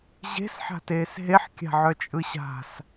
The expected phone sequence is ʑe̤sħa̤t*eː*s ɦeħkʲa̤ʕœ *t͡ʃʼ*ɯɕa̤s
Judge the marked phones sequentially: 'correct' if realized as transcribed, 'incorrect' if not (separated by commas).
correct, correct